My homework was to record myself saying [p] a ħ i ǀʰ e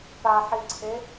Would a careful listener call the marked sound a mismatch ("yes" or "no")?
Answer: no